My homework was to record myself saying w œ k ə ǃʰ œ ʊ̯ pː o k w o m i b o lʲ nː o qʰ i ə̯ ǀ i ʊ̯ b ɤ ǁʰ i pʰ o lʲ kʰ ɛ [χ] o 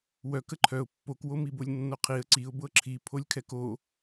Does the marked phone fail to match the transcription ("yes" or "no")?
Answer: yes